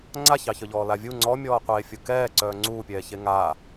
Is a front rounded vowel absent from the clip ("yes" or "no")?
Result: no